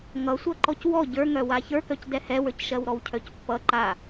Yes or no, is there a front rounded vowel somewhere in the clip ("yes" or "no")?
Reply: yes